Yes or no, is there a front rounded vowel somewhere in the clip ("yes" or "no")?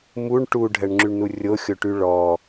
yes